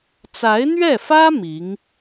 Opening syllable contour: rising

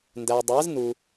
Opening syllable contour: low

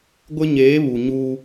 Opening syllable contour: high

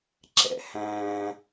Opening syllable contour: high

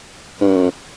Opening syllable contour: low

